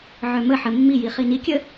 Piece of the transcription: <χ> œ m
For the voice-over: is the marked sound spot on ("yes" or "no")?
no